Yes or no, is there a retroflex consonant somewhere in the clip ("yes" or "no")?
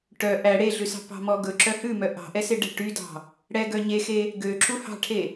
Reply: yes